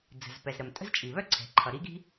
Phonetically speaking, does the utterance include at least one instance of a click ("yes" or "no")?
yes